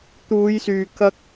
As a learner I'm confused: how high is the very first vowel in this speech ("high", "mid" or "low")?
high